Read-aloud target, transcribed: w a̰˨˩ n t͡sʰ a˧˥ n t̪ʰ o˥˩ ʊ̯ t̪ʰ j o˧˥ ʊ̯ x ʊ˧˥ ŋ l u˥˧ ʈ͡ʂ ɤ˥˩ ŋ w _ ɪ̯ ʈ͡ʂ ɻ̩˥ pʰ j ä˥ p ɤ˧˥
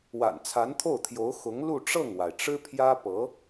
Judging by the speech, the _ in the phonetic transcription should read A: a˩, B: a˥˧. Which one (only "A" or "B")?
A